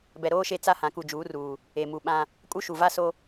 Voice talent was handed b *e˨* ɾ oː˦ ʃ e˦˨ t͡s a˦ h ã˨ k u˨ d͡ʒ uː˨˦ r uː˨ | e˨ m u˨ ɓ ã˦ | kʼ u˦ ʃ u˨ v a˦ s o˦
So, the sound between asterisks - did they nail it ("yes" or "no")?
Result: no